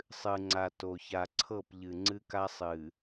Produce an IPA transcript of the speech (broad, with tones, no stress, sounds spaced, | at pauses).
sˤ ɨ˨ ŋ͡ǀ a˨ t o˨ ç a˨ ǀʰ ɤ˦˨ p ʎ ɨ˨ ŋ͡ǀ ɨ˦ k a˦ sˤ ɨ˨